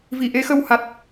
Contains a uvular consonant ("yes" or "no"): no